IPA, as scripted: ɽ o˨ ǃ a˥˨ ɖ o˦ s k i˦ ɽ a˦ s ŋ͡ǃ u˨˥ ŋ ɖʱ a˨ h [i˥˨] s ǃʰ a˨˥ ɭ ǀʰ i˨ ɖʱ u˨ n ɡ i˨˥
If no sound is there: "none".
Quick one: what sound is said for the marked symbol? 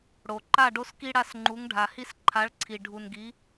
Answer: i˦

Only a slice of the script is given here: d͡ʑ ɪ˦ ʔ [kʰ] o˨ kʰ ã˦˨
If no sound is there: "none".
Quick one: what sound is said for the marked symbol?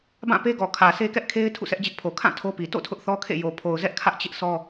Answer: pʰ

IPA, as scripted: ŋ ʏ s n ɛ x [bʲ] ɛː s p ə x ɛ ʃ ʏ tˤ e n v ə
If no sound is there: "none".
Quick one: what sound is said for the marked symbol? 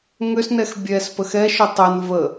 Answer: bʲ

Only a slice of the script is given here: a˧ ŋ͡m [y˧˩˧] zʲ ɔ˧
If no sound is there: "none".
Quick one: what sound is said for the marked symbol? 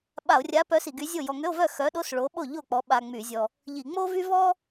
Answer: y˧˩˧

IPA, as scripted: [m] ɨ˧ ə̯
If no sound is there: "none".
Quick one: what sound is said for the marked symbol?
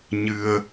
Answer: ɲ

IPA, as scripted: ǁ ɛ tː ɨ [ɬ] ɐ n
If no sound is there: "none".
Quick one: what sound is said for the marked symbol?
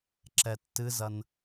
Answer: z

